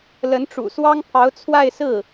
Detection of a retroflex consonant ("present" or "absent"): present